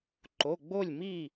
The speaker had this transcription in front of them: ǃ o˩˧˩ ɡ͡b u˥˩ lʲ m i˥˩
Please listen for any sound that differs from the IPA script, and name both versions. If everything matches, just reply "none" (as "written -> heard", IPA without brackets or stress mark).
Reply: u˥˩ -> o˥˩